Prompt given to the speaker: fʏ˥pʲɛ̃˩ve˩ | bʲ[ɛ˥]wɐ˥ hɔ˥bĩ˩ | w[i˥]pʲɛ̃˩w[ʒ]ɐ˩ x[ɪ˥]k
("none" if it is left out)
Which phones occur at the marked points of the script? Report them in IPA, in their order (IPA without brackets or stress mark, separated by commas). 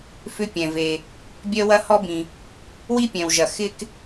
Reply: œ˥, i˥, ʒ, ɪ˥